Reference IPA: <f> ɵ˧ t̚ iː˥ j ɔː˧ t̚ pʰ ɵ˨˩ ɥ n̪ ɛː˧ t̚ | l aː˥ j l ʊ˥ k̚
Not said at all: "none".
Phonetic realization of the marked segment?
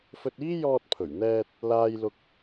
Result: f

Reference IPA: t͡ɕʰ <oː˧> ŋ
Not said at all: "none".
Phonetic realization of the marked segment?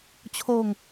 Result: oː˧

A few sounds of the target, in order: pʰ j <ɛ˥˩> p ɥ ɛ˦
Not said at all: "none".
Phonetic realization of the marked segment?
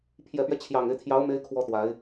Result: ɛ˨˩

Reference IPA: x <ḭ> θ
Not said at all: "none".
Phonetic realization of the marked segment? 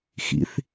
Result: ḭ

